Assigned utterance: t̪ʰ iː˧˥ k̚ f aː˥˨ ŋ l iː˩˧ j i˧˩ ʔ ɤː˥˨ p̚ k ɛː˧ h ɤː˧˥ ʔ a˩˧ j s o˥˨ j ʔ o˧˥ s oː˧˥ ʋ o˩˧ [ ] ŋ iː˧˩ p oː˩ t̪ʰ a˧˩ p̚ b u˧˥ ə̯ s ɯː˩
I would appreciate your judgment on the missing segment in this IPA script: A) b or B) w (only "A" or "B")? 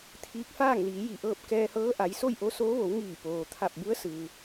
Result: B